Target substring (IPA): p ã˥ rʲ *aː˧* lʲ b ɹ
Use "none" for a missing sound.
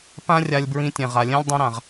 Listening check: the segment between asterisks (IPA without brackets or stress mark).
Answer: a˧